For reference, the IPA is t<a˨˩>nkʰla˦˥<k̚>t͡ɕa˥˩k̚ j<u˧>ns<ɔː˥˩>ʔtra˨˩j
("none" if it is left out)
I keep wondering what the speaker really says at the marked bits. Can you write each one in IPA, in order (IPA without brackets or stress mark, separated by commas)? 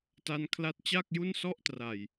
a˧, t̚, u˥˩, ɔ˥˩